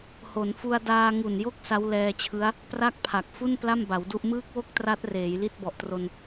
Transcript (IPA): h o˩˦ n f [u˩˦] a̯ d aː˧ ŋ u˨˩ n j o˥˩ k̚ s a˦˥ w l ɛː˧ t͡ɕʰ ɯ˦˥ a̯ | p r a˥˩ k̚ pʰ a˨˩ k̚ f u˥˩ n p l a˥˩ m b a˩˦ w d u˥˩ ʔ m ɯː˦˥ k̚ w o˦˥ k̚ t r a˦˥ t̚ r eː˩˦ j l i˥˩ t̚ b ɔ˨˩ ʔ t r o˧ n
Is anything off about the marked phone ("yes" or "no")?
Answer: yes